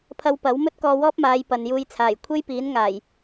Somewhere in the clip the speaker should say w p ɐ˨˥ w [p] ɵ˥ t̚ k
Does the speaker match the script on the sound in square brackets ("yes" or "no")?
no